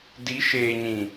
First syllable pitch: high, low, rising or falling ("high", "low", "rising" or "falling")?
rising